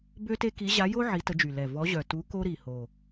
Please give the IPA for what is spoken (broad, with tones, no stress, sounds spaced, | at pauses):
b ø˦ t e˦ k i˨˦ ʑ a˨˦ j o˦ ʕ i˨˦ t ə˨˦ d͡ʒ y˨˩ l ɛ˨˩ v ɔ˨˦ ʑ œ˨˩ t u˨˦ k o˦ ɾ i˨˩ h o˨˩